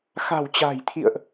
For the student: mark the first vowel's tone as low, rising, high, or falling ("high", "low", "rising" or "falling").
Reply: low